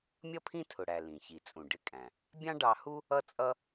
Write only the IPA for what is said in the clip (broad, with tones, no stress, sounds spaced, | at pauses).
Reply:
mʲ ʌ˥ pʰ ĩ˥ tʰ ʊ˩ ɽ æ˩ l ĩ˩ ç i˩ t͡sʼ ũ˩ ɖ ɪ˧ kʼ æ̃˩ | bʲ ɑ̃˥ ɖ ɑ˧ h u˥ | ʌ˥ t͡sʼ ʌ˥